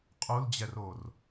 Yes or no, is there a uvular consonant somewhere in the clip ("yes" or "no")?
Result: yes